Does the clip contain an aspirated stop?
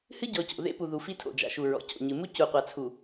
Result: yes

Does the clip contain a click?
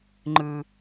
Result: yes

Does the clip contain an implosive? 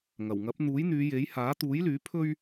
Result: no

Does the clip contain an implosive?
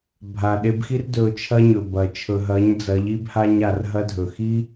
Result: yes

